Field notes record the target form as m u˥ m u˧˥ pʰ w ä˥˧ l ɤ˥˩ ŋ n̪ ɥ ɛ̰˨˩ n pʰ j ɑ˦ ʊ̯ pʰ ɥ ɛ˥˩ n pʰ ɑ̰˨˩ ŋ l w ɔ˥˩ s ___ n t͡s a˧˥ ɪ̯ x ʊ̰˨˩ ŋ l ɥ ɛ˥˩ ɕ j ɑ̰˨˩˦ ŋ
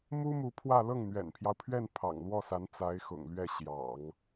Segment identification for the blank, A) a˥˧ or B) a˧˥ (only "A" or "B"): B